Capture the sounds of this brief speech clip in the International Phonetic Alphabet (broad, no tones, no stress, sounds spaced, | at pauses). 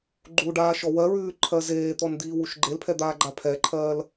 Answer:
ɡ͡ǃ u ɖ aː ʃ ɔ w ɜ ɹ ʉː ǃʰ ɜ z eː t̪ ɔ n d̪ iː w u ʃ ɡ͡ǃ e l pʰ ɛ d̪ aː ɡ͡ǃ a pʰ ɛ ǃʰ ɜː l